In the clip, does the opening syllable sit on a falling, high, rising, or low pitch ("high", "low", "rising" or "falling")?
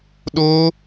high